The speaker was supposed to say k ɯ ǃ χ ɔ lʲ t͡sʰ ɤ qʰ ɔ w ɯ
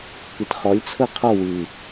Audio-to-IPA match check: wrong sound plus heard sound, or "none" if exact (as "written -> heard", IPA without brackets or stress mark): ǃ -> t